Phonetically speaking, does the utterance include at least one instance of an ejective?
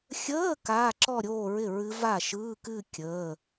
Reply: no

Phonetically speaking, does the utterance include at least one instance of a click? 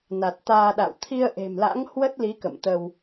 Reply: no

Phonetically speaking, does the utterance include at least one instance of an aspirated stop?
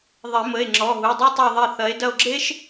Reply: no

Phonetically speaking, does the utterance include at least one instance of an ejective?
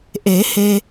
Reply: no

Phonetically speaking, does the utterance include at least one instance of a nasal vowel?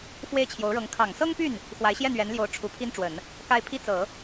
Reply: no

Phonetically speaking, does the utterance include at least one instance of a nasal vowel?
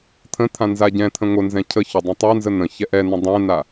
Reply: yes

